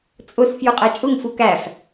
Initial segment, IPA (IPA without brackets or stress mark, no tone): t͡sʼ